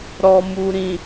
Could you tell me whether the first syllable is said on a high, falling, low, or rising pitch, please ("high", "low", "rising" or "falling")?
low